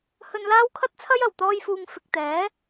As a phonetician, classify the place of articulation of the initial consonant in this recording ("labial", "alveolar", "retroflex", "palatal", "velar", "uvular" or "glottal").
glottal